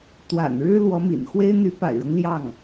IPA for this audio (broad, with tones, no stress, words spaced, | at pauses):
t̪wa̰˨˩nɻɻ̩˥ lwɔ˧˥mḭ˨˩nxwe˥ɪ̯ n̪y˧˥pa̰˨˩ɪ̯ɻɤ˦ŋ ljɑ˥˩ŋ